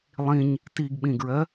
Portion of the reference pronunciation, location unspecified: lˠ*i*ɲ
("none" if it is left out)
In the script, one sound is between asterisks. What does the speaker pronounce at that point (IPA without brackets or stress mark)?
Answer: ĩ